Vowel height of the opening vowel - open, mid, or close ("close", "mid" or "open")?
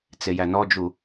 mid